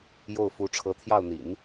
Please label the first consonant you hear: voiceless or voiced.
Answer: voiced